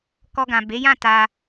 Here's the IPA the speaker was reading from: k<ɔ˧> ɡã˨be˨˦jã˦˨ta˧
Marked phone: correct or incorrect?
correct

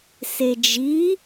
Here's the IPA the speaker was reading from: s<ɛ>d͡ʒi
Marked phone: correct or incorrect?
incorrect: e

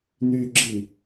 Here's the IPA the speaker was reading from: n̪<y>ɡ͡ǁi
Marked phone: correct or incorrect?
correct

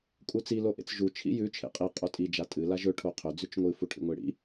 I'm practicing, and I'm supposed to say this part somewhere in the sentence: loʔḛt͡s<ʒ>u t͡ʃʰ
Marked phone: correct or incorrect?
correct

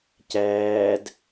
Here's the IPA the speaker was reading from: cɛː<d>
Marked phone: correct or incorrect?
correct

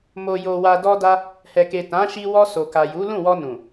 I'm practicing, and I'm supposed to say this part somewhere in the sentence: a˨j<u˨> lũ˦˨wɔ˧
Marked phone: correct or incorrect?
incorrect: u˨˦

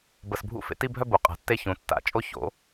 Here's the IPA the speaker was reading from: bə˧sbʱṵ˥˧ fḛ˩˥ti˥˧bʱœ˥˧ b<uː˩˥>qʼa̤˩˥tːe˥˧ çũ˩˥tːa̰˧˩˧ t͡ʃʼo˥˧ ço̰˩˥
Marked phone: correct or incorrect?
incorrect: u˩˥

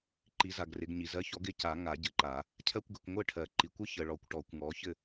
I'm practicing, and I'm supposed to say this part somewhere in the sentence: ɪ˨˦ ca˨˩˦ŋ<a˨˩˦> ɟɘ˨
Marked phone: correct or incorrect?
correct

